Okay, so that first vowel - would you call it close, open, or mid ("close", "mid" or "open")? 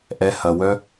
mid